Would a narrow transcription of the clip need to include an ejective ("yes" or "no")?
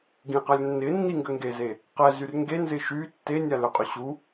yes